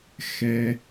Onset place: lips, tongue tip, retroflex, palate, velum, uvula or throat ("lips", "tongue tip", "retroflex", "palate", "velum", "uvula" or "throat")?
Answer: velum